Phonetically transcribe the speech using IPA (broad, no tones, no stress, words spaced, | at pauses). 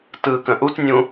tɯːkə̃ʔutnʲũ